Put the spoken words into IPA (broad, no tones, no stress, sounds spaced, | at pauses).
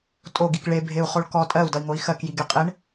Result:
tʼ o ɡ i k ɭ e bʱ e u̯ χ o ɭ k ɔ tʼ ɜ u̯ d ʌ i̯ ŋ o i̯ x ɜ k j i ɡ e qʼ e ɳ